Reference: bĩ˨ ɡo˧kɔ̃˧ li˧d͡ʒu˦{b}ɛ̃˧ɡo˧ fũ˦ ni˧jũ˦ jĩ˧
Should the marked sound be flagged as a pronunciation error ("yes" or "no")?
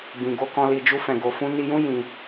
yes